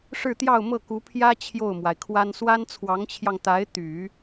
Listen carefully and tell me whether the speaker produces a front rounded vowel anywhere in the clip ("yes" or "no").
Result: yes